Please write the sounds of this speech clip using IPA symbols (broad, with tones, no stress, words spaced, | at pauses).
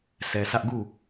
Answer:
sʰɛ˨sʰä˦ʔ ɡu˦˨